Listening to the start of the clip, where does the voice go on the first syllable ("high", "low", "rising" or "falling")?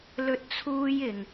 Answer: high